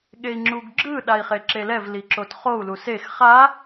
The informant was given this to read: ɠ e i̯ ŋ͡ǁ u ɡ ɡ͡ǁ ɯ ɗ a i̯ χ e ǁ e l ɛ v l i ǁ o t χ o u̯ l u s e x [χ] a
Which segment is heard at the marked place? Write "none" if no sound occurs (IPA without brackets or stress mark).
χ